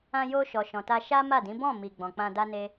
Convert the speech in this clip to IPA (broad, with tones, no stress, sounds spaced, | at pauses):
ã˧ j o˧ ʃ ɔ˨ ʃ ɔ̃˨ t a˧ ʃ a˦ m a˦˨ d ĩ˨˦ b ɔ̃˦˨ m i˨ ɡ͡b ɔ̃˨ k͡p ã˧ d a˦ n e˦